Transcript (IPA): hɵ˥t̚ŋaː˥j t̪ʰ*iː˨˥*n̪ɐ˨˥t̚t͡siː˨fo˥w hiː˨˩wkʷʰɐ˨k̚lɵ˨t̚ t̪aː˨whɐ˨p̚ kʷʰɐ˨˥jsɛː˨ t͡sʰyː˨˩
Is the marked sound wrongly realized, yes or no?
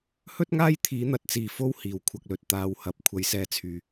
no